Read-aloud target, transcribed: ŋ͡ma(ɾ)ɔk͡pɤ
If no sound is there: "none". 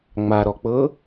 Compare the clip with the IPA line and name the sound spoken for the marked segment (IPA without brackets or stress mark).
ɾ